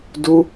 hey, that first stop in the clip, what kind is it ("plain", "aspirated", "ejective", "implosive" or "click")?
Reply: plain